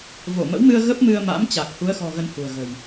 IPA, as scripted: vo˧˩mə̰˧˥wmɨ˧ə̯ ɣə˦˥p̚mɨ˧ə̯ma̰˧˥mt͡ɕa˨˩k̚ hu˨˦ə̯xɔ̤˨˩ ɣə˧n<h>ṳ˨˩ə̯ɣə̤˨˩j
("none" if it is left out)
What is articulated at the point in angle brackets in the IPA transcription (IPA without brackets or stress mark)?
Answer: h